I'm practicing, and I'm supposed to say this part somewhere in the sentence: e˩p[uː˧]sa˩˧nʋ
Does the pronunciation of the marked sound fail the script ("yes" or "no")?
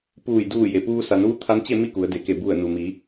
no